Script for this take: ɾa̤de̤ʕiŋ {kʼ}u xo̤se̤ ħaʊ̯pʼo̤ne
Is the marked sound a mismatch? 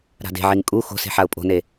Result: no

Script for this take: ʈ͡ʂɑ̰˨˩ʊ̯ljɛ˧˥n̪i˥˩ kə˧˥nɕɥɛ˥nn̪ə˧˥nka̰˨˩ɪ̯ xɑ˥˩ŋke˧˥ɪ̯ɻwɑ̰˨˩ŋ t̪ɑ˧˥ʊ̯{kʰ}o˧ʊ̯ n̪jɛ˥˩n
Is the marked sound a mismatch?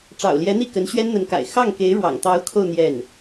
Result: no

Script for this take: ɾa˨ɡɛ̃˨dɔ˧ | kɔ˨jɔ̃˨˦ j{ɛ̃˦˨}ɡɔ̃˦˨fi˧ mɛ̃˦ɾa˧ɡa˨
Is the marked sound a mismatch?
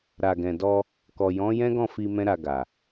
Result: yes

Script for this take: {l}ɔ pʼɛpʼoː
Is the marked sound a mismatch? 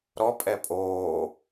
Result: yes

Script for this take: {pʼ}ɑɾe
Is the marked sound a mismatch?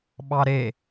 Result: yes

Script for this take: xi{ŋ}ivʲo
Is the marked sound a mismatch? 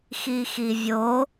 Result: yes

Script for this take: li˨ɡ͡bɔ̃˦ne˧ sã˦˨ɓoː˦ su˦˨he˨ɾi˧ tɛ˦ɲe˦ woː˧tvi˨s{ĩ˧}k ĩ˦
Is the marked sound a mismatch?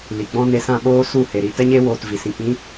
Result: no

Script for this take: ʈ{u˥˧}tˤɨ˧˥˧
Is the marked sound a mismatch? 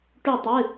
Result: yes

